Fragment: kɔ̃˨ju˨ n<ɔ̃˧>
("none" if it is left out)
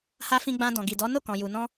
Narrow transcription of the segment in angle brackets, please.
ɔ̃˧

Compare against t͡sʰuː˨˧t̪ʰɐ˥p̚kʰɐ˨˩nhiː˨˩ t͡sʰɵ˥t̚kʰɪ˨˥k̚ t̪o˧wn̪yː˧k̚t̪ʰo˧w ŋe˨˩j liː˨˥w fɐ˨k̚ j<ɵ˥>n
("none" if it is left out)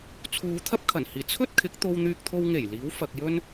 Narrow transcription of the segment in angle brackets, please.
ɵ˥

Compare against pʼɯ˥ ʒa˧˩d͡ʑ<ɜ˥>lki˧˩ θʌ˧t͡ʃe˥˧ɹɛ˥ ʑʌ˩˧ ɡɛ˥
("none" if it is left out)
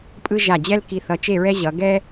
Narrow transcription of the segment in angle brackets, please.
ɛ˥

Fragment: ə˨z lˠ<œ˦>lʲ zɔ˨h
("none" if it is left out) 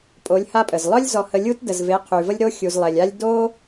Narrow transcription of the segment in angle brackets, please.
œ˦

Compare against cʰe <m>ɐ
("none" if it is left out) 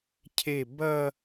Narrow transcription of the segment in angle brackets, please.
b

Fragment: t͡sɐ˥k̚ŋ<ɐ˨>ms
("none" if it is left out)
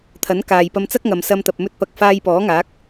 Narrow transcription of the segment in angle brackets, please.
ɐ˨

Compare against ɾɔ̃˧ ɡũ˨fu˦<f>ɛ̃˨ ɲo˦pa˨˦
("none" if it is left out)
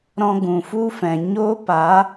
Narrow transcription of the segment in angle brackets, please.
f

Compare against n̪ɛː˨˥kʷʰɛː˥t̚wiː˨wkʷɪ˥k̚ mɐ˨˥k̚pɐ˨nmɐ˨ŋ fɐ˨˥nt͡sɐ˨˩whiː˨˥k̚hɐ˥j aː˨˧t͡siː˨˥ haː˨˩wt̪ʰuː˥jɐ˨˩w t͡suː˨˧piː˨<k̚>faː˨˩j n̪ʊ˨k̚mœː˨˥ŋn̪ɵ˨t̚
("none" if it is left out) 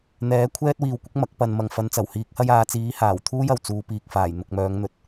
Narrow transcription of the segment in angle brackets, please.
k̚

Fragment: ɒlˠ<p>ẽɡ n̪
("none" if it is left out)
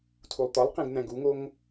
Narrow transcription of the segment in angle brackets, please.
q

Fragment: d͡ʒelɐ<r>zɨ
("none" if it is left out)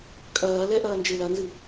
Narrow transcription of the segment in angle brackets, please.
n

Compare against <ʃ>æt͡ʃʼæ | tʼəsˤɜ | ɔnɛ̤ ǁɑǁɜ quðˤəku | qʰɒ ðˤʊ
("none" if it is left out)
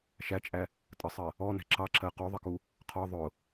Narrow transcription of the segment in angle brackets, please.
ʃ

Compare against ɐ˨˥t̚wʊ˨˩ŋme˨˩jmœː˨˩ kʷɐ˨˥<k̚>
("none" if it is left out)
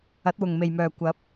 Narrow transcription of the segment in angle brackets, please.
p̚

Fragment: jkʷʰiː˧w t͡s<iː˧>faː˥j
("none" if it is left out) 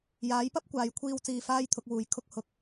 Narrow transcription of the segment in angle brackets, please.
iː˧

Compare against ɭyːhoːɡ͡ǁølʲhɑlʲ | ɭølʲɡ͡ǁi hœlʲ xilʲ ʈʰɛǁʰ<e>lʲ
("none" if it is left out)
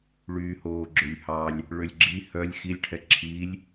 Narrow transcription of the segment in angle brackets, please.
i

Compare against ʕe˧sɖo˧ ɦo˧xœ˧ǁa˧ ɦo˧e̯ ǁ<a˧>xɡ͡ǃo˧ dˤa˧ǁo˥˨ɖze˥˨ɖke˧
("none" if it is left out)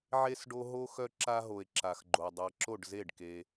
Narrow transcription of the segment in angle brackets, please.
a˧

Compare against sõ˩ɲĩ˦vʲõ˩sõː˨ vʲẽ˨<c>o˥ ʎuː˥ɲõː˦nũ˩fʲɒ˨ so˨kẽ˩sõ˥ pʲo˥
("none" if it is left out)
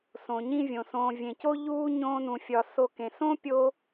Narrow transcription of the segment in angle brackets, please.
c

